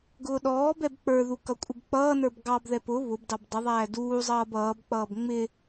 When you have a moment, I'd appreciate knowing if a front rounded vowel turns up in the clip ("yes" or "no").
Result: no